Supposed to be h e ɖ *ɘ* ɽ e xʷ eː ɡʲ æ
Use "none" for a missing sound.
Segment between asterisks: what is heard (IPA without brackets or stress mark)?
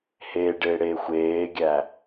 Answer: e